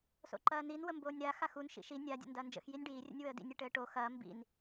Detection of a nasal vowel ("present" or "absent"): absent